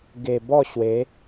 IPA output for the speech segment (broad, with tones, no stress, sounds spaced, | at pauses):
ɡ e˨˩ b ɔ˥˧ ɕ w e˨˦